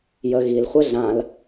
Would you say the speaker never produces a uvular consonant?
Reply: no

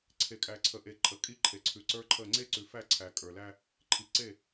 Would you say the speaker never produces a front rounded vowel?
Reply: yes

